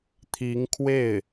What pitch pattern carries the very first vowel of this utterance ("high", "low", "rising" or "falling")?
rising